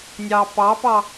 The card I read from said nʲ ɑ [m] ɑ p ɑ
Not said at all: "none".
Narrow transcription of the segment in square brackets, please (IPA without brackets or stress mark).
p